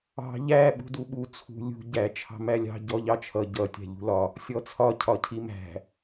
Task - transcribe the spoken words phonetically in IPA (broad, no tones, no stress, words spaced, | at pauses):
ɑ̤ ʎæ ɓṳduɓu t͡sʰṳ lʲṳ ɟæ t͡ʃʰɑ̤mælʲɑ̤ ɟɔʎɑt͡ʃʰʌ ɟʌ tʲæ̤ʎṳlɒ | sʲɔt͡sʰɒ cʰɒcʰimæ̤